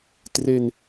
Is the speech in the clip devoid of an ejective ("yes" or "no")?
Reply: yes